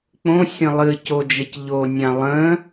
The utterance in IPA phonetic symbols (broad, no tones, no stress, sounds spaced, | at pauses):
k͡p õ sʲ ə̃ lˠ ɨ c o d͡ʒ ə c ʎ o nʲ ã lˠ ə̃